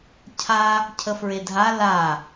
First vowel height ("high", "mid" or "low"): low